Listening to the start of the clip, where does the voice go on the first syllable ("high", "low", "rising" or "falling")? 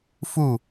falling